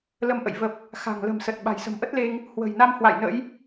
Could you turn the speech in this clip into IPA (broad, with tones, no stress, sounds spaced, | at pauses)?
l ə˧ m ʔ ə̰˧˨ j v ə˨˩ p̚ | x a̤˨˩ ŋ l ə̤˨˩ m s ə˨˩ t̚ ɓ a̤˨˩ j s ə̤˨˩ m ʔ ə˦˥ t̚ l e˧ ŋ | h w ə̤˨˩ j n a˧ m h w a̰˧˨ j n ə̰˧˥ j